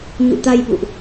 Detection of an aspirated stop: absent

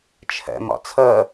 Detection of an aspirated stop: present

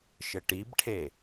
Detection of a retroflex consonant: present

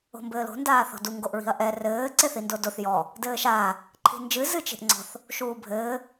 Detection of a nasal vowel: absent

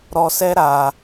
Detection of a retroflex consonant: absent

